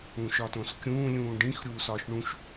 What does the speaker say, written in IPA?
ũ ʃ ɒ t õ s kʲ ũː lʲ ũː ɖ ĩ x ɾʲ uː s ɒː ʃ ɳ ũ ʃ

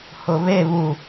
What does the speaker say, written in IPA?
h ʊ β e β u

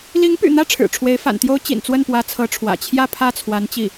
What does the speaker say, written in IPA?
l i˧˥ ŋ p y̰˨˩ n̪ ä˥˩ ʈ͡ʂʰ ɻ̩˨˩ ʈ͡ʂʰ w e˧˥ ɪ̯ f a̰˨˩ n t̪ j o˥ ʊ̯ t͡ɕ ḭ˨˩ n t͡s w ə˥˩ n p w ä˧˥ t͡sʰ ɤ˧˥ ʈ͡ʂʰ w ä̰˨˩ t͡ɕʰ j ä˥˧ pʰ ä˥˩ t͡sʰ w a˧˥ n t͡ɕ i˥˩

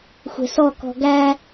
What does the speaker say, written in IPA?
xʷ ɛ̤ s ɔ k ɔ̤ ɡ æ

